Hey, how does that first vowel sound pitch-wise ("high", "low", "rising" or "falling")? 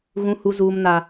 high